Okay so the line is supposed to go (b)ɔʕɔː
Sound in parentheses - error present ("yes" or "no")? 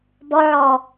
no